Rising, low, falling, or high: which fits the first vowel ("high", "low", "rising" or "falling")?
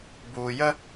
low